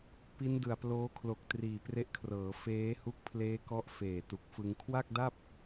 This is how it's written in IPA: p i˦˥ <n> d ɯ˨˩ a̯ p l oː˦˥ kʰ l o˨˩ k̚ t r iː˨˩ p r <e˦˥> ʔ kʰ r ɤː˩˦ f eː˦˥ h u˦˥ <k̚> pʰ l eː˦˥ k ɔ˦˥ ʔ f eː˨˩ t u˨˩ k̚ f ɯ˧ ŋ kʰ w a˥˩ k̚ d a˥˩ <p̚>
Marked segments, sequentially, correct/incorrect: correct, correct, correct, correct

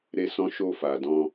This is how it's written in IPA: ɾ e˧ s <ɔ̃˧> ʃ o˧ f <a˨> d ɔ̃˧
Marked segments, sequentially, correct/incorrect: correct, correct

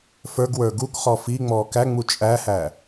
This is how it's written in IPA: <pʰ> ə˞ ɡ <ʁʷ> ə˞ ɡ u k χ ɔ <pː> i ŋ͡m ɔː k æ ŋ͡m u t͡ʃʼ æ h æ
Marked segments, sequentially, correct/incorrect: incorrect: f, incorrect: w, incorrect: f

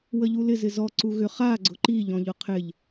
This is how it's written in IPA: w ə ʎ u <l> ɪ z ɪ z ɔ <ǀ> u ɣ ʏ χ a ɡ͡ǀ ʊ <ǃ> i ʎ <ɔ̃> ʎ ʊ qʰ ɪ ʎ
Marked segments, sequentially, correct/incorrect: correct, correct, correct, correct

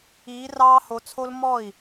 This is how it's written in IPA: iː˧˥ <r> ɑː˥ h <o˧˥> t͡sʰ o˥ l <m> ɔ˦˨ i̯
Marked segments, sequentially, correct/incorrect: correct, correct, correct

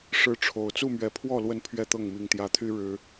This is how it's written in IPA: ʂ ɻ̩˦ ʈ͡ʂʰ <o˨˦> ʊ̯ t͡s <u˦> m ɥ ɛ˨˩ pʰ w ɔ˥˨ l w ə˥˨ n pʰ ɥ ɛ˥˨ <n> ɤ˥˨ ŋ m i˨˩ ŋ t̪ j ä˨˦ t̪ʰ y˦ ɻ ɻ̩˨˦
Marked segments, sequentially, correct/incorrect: incorrect: o˨˩, incorrect: u˥˨, incorrect: t̪

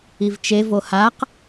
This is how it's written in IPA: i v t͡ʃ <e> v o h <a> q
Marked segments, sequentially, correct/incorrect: correct, correct

